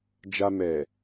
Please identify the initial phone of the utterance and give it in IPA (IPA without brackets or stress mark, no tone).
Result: d͡ʒ